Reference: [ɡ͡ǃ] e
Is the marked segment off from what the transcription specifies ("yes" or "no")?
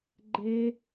no